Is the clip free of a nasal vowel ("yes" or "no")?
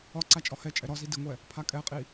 yes